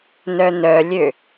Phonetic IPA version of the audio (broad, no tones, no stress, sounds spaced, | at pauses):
n œ n œ lʲ ø